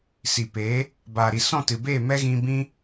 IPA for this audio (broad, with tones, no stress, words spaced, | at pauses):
si˨peː˨˦ | baː˨ɾi˨ sɔ̃˦˨tɨ˨beː˦˨ mɛ˦ɣĩ˧ bĩ˦